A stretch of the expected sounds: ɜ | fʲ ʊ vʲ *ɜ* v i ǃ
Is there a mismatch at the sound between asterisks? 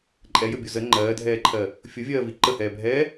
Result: yes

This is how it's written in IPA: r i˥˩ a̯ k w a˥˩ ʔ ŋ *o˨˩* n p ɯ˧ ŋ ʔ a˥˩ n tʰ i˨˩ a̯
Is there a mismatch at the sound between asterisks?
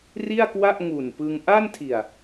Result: yes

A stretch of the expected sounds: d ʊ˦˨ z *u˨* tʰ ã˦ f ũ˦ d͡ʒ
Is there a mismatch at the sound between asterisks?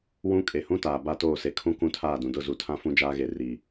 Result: no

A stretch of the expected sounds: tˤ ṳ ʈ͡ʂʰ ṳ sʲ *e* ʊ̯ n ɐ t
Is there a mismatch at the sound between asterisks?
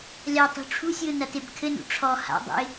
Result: yes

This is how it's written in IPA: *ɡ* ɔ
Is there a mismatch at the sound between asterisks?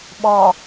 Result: yes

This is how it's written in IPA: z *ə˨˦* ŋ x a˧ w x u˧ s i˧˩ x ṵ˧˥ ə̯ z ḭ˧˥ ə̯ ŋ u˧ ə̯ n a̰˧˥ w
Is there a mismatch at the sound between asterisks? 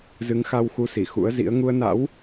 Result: yes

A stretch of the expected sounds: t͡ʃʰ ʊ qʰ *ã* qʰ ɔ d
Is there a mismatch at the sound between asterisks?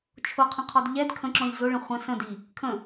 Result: yes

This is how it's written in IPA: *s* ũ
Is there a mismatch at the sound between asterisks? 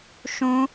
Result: yes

